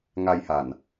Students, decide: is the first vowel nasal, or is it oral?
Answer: oral